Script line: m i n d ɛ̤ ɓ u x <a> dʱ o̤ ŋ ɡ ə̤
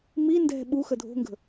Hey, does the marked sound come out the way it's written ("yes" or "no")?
no